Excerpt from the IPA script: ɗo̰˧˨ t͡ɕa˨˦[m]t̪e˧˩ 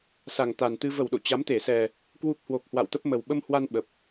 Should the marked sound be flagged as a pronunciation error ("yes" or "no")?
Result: no